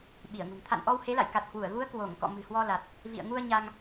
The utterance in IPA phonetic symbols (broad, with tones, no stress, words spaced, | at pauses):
ɓi˧˩ə̯ŋṳ˨˩n t̪ʰa̰˧˨nʔɔ˧whe˨˦la̰˧˨j ka˨˩t̚ hwu˧˩ə̯ɣu˨˦ə̯ kwo˧˩ŋkɔ̰˧˨ mɨ̤˨˩hwɔ˧la˨˩t̚ | vḭ˧˨ə̯ŋu˧ə̯ ɲa˧ŋ